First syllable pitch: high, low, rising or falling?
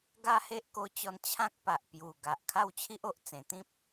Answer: high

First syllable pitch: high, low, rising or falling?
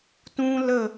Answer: high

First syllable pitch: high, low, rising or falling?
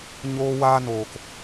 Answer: high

